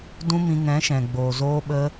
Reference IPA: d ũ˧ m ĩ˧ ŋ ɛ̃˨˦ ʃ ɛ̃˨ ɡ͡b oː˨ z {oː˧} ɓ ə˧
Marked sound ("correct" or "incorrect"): correct